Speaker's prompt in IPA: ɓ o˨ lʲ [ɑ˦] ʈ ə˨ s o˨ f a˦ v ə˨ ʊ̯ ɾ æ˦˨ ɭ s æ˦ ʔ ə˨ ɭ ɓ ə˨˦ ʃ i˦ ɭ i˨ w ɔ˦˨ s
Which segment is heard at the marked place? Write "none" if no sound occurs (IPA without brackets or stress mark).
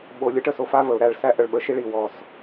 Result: ə˦